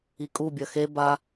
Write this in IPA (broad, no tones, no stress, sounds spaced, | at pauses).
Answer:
i kʼ u bʲ ɐ x e b a